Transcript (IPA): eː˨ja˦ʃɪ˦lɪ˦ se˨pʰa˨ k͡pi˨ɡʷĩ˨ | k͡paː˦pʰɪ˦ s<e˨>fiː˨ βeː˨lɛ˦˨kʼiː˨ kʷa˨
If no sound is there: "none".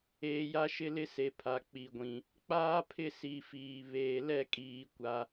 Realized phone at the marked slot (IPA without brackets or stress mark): i˨